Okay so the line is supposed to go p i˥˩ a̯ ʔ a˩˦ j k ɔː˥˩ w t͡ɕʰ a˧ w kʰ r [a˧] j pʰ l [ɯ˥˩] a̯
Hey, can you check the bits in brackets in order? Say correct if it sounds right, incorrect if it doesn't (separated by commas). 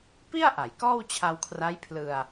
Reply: incorrect, incorrect